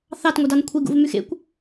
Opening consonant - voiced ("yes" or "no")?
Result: no